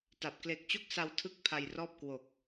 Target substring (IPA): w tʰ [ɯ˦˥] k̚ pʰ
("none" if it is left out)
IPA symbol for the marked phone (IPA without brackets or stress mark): ɯ˦˥